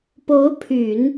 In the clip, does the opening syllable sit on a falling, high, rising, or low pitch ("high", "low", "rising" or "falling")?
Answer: rising